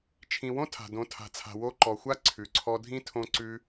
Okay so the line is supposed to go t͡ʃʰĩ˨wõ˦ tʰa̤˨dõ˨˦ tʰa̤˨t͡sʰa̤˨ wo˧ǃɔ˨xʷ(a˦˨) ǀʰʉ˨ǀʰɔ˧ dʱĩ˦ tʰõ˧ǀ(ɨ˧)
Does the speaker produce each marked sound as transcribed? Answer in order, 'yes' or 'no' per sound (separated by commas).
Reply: no, no